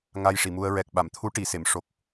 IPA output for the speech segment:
ŋ a˧ j ʂ i˨˩˨ m u˧ ə̯ ɹ ɛ˨˩ k̚ ɓ a˨˩˨ m t̪ʰ u˧˥ ʈ i˨˩˨ s e˨˩˨ m ʂ o˨˩ k̚

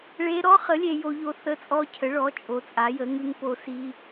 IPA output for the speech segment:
ɭ e˦˥ ɾ ɔ˦˥ χ ə˨˥ lʲ e˦˥ j o˦˥ ʎ o˦˥ θ ə˦˥ t͡sʼ ɔ˦˥ cʰ ə˨˥ ɭ ɔ˨˥ t͡ʃʼ o˨˥ t͡sʼ a˨˥ j ə˨˥ ŋ ʉ˦˥ ŋ p o˦˥ s i˦˥

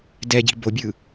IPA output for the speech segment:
d ɛ ɟ i̤ b o bʲ ɯ

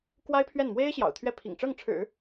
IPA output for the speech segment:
k w a˥ ɪ̯ pʰ ɥ ɛ˥˩ n m w e˥ ɪ̯ ɕ j ɑ̰˨˩ ʊ̯ t̪ʰ ɥ ɛ˥˩ pʰ ḭ˨˩ ŋ ʈ͡ʂ ɤ˥˩ ŋ ʈ͡ʂʰ ɻ̩˨˩˦

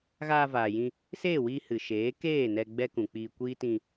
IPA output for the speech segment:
ɣ aː˧ v aː˨ j ĩ˧ | s eː˦˨ w iː˧ h ɨ˨ ʃ eː˨˦ k eː˦˨ n ɛ˧ ɡ͡b ɛ˦ k ũ˨ k͡p iː˧ kʷ iː˦ t ĩ˧

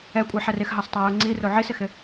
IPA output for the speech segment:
ɛ kʷʼ ɛ ħ ɛ r ɪ x ɦ ɑ s tˤ a j u ŋ͡ǀ i r o ʕ i s ɪ x ɪ

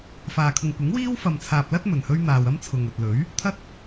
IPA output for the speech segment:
f aː˨ kʰ ʊ˨ ŋ kʷ ɪ˨˥ ŋ w iː˥ w f ɐ˨ m t͡sʰ aː˨ p̚ l ɐ˥ t̚ m ɵ˨˩ n h ɵ˥ ɥ n̪ aː˨ w ɐ˥ m t͡sʰ ʊ˨ ŋ ɵ˨ t̚ l ɵ˨˥ ɥ | t̪ʰ ɐ˧ t̚

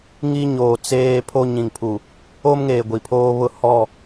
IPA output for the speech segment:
ŋ i˦ ɲ oː˨ t͡s eː˦ pʰ o˦ ɲ ĩ˨ ŋ pʰ u˨ | o˦ m ŋ eː˨ ɡʷ i˨ pʰ oː˦ β ʊ˦ h ɔ˦˨

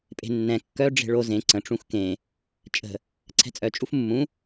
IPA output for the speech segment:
pʼ e̤ nː ɛ̃ kː œ ɖ͡ʐ e̤ ɭ o z ẽ ǀ ə̃ ʈ͡ʂ ũ x k ẽ | t͡ʃʼ ə̤ | ǀʰ ɛ̤ t͡sʼ œ t͡ʃʼ u f mː ũ

